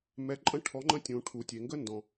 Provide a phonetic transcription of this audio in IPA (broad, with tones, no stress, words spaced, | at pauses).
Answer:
mɛ˨˥ǃʼə̃˥ ʈʰɔ˨˥ŋ͡ǃə̃˥tʲũ˩ ʈʰu˩tʲe˩ŋɡə˥ndɔ̃˩